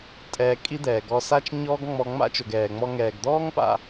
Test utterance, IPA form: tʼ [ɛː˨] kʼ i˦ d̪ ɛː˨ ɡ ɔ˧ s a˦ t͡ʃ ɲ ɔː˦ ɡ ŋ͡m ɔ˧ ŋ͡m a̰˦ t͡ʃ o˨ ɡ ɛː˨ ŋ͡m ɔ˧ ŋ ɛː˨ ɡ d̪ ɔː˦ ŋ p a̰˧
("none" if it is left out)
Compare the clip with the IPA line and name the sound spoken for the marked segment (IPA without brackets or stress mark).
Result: ɛː˧